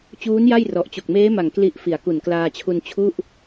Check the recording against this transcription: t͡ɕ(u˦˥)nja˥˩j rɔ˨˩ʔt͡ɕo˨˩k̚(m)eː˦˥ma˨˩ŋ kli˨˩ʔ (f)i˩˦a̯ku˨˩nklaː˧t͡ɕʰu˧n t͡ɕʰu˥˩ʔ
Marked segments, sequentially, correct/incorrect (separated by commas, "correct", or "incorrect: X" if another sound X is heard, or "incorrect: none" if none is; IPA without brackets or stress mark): incorrect: uː˦˥, correct, correct